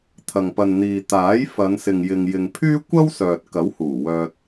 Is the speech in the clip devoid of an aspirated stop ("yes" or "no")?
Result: no